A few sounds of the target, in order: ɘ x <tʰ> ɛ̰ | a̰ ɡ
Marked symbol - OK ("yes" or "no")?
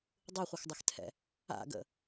yes